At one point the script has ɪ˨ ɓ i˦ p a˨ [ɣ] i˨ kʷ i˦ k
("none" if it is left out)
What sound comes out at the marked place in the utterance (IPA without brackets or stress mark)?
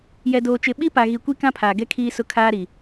ɣ